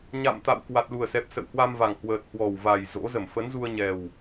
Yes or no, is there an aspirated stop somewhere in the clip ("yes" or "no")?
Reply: no